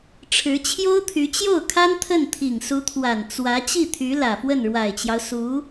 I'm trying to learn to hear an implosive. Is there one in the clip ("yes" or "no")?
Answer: no